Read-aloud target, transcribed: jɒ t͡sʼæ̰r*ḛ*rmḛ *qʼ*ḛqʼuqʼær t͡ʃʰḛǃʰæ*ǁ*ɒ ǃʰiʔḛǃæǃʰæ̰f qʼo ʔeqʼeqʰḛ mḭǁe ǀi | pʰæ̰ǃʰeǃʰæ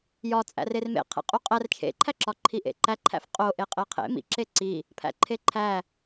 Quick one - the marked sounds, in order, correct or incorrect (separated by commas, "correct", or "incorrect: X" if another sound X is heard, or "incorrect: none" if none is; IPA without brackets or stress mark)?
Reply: incorrect: e, incorrect: qʰ, correct